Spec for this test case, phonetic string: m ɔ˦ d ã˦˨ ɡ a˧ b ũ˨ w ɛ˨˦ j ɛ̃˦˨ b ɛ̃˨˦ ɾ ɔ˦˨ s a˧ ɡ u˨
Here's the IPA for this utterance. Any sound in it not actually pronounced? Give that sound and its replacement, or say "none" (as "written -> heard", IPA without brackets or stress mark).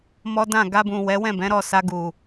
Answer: j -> w